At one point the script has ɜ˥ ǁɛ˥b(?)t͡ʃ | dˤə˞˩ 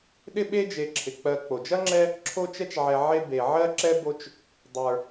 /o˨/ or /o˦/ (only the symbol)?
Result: o˦